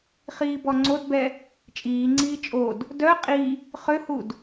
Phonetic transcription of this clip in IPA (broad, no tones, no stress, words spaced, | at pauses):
χiːbɔŋ͡ǀodbɛ | t͡ʃʼiːŋ͡ǀiː t͡ʃʼod | dœ qʼi | χøhud